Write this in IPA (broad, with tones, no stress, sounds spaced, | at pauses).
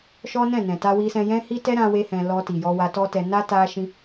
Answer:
ʃ ɔ˦ n ɛ̃˦˨ n ɛ̃˨ t a˧ w i˧ s ɛ̃˧ j ɛ̃˦ h i˦ t ɛ˦ ɾ ã˦ w e˦ h ɛ̃˧ l ɔ˧ t i˨ j ɔ˧ w a˧ t ɔ˦ t ɛ˧ n a˦ t a˦ ʃ ĩ˦